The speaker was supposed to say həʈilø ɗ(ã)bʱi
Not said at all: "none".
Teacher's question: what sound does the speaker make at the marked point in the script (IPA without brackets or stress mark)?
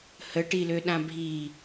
ã